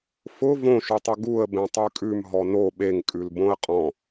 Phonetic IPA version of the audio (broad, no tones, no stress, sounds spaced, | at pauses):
f ʊ v õ ʃ u tˤ ə ɡ u ə̯ b ẽ tˤ ʉ kʼ ʉ m ɦ ɔ n o ɓ e ŋ kʼ ʉ l b õ ə̯ qʼ ɔ̃